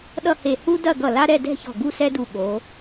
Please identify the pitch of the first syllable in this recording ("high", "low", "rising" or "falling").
falling